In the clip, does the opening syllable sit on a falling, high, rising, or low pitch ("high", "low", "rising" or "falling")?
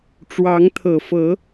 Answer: rising